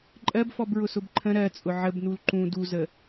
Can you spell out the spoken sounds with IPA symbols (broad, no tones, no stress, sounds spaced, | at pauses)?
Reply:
ǃʼ ɜ b f ɔ b ɹ ʊ s ʊ b ǃʰ ə̃ ɾ ɜ t͡sʼ ʊ ʕ ə b n u l ǃ ũ d u z ə